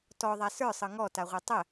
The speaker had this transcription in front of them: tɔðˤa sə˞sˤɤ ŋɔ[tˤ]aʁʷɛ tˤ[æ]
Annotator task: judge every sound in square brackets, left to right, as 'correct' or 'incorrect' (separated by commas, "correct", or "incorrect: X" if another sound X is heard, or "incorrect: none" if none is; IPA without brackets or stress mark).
incorrect: t, incorrect: ə